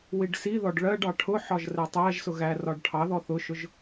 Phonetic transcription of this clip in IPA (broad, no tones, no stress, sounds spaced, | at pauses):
w i ɖ s i ð ɔ ɖ ɭ ɜ ɖ ɑ ʈʰ ʊ ħ ɒ ʒ r ɛ tˤ æ ʒ s ʊ ɣ æ r ɒ ɖ ʈʰ ɑ ð ɔ θ ʊ ʃ ʊ ʒ